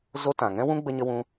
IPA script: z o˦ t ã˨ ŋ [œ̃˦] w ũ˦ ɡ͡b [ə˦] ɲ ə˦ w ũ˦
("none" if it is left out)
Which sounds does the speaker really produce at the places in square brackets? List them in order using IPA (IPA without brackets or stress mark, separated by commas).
ɛ̃˦, ə˦